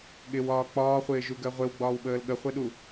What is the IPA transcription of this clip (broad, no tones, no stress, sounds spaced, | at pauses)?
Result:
ɠ ɪ w ɒː k͡p ɒː χʷ ɪː ʒ u ɡ ɜ ʁʷ ɪ w ɡ͡b ɒː w ɓ əː l ɠ ə χʷ ɛ ɗ u